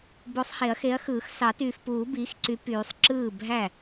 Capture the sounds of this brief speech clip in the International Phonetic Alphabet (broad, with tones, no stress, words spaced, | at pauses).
bo˨˥sˤhe˨˩˦ɐ̯xe˨˥ɐ̯xɯː˨˩˦x sɑ˨˩˦tyː˨fpuː˨˩˦ biː˨˥x ǀy˨˥pyː˨˩˦sˤ ǁɯː˥˩bʱæ˥˩